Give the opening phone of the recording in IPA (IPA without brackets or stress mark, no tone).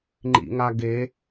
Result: ŋ͡ǃ